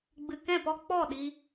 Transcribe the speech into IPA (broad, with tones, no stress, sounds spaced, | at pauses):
ɡ͡b ɨ˨ k ɛ̃˦˨ p ɔ˦ k͡p ɔ˦˨ ɗ i˧